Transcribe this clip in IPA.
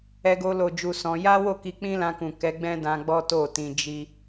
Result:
ɛ˧ ɡ o˧ l o˨ d͡ʒ u˨ s ɔ̃˧ j a˦ w o˦˨ k i˧ k͡p ĩ˦ l ã˧ k ũ˨ k ɛ˨˦ ɡ͡b ɛ̃˦ d ã˧ ɡ͡b ɔ˦ t o˦˨ t ĩ˧ d͡ʒ i˦

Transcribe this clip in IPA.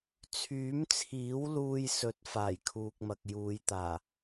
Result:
t͡sʰ yː˨˥ m t͡sʰ iː˨˥ w l uː˧ j s ɵ˨˥ t̚ f aː˨˩ j kʰ uː˨ k̚ m ɐ˨ k̚ j uː˨˧ j t̪ aː˨˩

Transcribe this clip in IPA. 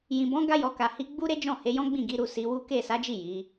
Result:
j ĩ˨ b ɔ̃˨˦ ɡ a˧ j ɔ˨ k a˨ h i˨˦ ɡ͡b u˦ ɾ e˦ d͡ʒ ɔ̃˦˨ h e˨˦ j ɔ̃˦ ɡ͡b ĩ˦˨ ɡ i˨˦ ɾ u˧ s i˧ w u˦ k e˦˨ s a˨˦ d͡ʒ i˦˨ j i˨˦

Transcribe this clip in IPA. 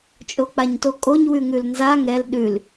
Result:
t͡ʃʼ o k͡p a ɲ t o kʼ o ɲ w ʉ ŋ ʉ l n z a ŋ ɛ l ɗ ʉ l

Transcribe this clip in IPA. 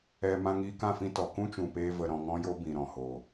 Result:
ɛ˨ m ã˧ ŋ iː˧ k ã˦˨ f ĩ˧ t ɔ˨ k ũ˦ t͡ʃ ũ˨ p eː˧ v ə˨ ɾ ɔ̃˨ ŋ ɔ̃˧ j o˧ b ĩ˨ ɾ ɔ̃˨ h o˨

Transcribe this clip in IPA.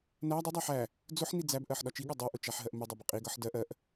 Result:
n æ dˤ ʊ dˤ æ ħ æ | d͡z ʊ ħ n i d͡z æ b ʔ ɜ ħ ɗ ɒ t͡ʃ i ɠ ʌ dˤ i ʔ ʊ t͡ʃ æ ħ ɦ ɜ ʔ m ɪ dˤ ɜ b ɪ qʼ i ɡ ʌ ħ d ɜ ʔ ɜ ʔ

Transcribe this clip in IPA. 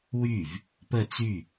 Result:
w y v | p ə t͡s y

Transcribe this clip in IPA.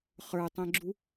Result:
χ ə˞ tˤ ɛ̃ ɡ͡ǁ u

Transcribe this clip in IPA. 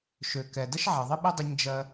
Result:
ʃ ø˨ k ɛ˨ d ə˦ ʃ ʕ ɐ˨ ðˤ ɘ˦ ɓ ɐ˦ dˤ ə˧ ɲ d͡ʒ ɜ˧

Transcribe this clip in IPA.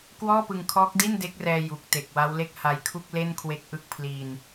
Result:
k w ɔː˥˩ p ɯ˧ ŋ kʰ ɔː˦˥ k̚ d i˥˩ n d e˦˥ k̚ r ɛː˧ j u˨˩ k̚ t e˨˩ k̚ w a˦˥ w l e˥˩ k̚ h a˧ j kʰ u˥˩ k̚ l e˥˩ n kʰ w e˦˥ k̚ ʔ ɯ˦˥ k̚ pʰ l iː˧ n

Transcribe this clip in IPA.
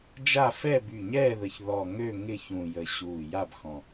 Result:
d͡ʒ a˦˨ f ɛ˦˨ b y˨˩ ɲ ɛː˦˨ ð ə˨˩ ç ð ɔ˨˩ ŋ ø˦˨ ŋ ɪ˦˨ ç ũ˨˩ j ə˨˩ ɕ uː˨˩ j a˦˨ b x ɔ̃˨˩

